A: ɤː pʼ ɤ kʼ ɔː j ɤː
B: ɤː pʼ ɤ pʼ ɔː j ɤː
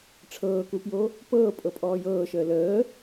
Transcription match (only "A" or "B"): B